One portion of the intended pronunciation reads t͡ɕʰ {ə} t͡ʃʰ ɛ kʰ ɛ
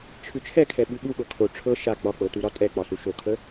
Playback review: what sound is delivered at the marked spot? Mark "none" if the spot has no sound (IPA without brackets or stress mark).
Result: ʉ